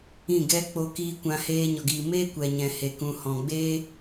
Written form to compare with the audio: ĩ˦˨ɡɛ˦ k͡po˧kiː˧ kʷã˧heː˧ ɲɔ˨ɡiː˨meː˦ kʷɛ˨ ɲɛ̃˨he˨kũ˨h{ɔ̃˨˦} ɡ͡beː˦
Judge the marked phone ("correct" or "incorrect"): incorrect